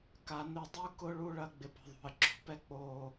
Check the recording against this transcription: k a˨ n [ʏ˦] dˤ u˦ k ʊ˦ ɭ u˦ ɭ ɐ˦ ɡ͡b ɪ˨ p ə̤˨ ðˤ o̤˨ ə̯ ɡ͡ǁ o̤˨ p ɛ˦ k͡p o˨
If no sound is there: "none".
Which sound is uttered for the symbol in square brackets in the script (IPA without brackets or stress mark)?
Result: ʏ˦˨